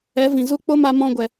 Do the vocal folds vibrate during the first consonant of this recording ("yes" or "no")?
yes